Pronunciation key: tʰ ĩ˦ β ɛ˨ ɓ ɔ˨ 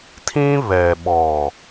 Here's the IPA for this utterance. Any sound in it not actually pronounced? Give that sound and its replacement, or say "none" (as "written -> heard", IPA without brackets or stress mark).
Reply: none